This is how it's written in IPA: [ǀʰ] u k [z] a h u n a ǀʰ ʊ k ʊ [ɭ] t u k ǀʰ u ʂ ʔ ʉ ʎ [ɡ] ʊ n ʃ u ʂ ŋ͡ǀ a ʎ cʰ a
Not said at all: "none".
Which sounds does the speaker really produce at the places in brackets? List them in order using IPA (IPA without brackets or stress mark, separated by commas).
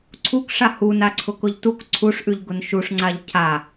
ǀʰ, ʂ, ʎ, ɡ